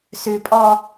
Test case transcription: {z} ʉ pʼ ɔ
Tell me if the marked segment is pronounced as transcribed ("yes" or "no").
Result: no